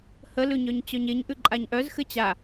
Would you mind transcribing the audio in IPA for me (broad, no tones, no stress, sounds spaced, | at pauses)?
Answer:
h ə l ʉ ɲ œ ɲ t͡ɕ œ ɲ e ɲ ʔ ʉ ǃʼ a ɲ ʔ œ z x ɘ t͡ɕ a